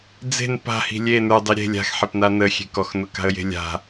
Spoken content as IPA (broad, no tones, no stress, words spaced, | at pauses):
d͡ze̤n pa̤hi̤ lʲe nə˞dˤi ɾʲe̤ lʲa̤xħepna nəxʲe̤ kɔxnʊka̤ə̯je̤ lʲa̤